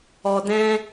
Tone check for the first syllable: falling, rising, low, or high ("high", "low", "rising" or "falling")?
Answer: low